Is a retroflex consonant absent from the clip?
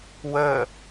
yes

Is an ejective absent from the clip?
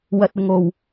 yes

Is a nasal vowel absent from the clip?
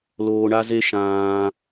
no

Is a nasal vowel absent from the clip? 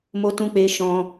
no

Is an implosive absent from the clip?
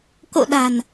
no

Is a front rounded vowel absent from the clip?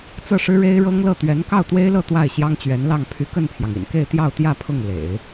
no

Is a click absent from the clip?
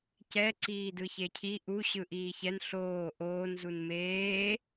no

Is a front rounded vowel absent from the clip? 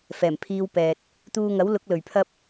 yes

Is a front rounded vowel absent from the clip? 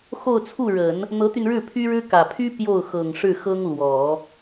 no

